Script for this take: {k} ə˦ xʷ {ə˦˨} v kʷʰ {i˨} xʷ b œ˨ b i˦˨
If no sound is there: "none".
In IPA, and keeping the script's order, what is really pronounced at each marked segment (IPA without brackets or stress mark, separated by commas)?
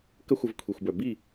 k, ə˧, i˨